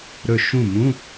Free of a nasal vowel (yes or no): no